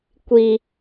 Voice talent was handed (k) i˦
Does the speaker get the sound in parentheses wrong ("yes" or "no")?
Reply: yes